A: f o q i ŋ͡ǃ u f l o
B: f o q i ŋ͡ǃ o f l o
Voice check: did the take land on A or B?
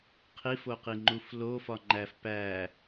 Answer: A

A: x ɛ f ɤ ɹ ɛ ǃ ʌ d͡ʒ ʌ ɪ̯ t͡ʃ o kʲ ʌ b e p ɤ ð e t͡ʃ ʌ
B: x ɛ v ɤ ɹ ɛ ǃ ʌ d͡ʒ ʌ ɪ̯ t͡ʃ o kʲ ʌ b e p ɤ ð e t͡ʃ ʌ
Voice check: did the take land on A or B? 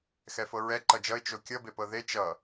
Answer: A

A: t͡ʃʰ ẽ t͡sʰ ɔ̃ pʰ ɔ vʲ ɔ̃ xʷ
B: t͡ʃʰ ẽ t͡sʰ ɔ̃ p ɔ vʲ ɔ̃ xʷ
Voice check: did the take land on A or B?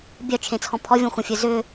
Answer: A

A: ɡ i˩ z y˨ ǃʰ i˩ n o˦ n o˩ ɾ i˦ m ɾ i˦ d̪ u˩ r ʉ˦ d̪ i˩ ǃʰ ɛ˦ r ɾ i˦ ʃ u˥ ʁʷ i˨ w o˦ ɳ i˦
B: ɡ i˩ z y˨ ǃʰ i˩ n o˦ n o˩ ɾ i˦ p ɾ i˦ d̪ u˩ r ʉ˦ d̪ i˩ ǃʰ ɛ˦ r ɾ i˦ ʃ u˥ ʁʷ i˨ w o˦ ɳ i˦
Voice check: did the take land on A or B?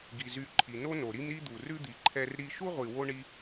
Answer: A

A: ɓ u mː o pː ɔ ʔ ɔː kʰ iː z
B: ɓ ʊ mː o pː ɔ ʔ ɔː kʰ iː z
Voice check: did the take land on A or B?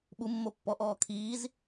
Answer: A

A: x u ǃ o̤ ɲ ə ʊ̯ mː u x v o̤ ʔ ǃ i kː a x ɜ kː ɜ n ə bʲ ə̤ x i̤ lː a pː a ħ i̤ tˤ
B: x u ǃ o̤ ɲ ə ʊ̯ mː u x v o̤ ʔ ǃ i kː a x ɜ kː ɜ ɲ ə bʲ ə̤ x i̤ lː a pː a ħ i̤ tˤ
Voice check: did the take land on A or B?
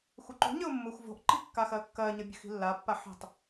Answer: B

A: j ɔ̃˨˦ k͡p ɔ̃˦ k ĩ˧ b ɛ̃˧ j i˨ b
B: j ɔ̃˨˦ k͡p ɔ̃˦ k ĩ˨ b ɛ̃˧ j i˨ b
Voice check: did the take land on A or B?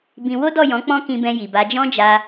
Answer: A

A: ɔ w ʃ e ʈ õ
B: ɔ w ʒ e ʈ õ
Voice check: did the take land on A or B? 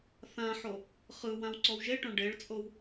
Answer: B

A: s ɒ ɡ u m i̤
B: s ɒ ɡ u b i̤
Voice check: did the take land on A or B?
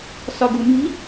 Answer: A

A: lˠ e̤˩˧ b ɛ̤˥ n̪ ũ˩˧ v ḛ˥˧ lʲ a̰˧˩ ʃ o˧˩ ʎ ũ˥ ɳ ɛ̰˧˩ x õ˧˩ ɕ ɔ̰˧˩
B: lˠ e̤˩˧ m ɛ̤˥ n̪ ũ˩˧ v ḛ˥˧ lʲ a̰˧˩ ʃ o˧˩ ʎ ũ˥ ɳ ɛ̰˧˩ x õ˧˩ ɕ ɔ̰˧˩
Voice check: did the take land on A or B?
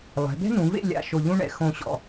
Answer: A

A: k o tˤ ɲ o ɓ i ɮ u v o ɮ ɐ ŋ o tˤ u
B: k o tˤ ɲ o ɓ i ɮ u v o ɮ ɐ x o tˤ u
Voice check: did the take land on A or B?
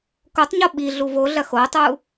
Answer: B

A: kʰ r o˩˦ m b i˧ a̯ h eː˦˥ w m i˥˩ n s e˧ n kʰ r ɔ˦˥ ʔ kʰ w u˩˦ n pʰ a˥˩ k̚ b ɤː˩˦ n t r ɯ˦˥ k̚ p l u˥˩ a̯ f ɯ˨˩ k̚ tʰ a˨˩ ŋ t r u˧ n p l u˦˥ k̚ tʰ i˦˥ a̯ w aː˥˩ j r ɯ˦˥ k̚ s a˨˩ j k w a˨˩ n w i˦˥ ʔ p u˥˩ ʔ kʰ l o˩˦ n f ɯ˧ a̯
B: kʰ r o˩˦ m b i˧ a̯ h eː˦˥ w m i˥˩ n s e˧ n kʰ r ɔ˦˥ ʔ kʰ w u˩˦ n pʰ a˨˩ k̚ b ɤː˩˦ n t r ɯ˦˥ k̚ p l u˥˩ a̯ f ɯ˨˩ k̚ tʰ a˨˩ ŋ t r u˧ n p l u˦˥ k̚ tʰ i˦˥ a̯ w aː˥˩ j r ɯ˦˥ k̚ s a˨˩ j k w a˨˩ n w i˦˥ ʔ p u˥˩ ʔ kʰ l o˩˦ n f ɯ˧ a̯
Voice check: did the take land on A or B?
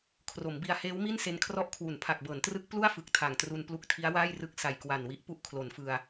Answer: B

